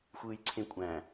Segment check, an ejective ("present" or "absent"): present